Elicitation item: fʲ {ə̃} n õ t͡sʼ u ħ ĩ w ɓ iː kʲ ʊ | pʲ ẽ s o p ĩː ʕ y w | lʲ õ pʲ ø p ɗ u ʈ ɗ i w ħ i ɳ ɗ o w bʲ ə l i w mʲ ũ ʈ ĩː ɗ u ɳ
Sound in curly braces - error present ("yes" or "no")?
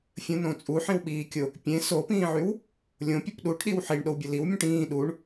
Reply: no